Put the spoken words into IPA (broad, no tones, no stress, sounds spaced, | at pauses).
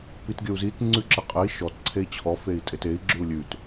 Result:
p i t ɡʲ ə u̯ z i t ŋ͡ǀ ʉ ǁ ɘ qʼ ɘ i̯ ʃ ɔ t ǀʰ e i̯ t͡ɕʰ ɔ f e i̯ tʼ e t e i̯ ɡ͡ǁ ʉ u̯ lʲ ʉ t